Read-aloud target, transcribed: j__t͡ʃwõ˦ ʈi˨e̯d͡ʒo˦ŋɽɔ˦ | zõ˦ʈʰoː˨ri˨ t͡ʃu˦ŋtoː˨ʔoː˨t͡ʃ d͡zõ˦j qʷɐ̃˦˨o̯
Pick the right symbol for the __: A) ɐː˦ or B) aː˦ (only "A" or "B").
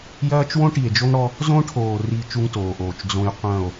A